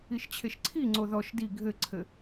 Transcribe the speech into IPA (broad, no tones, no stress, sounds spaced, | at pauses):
i ʃ t͡ɕʰ e ʃ ǀʰ i ŋ͡ǀ o ð ɔ ʃ d i ɡʱ ɘ ǀʰ ɘ